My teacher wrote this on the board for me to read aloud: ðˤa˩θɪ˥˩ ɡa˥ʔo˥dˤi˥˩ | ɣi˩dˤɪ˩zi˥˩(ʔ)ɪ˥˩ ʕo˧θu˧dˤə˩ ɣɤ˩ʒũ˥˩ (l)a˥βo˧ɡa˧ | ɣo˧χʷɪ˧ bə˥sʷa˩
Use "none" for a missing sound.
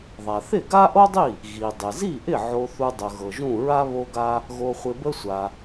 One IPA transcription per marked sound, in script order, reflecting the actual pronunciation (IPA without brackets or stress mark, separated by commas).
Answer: ʔ, ɹ